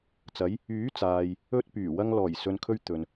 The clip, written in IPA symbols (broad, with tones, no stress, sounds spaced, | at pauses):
t͡s ɐ˨˧ j | yː˨˥ t͡s aː˨ j | ɵ˧ t̚ p yː˨˩ w ɐ˧ ŋ l ɔː˨˩ j s ɵ˨ n kʰ ɵ˧ ɥ t̪ ɵ˨ n